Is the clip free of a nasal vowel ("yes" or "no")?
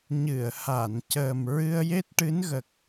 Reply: yes